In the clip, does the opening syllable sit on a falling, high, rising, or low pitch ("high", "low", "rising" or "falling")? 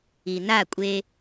low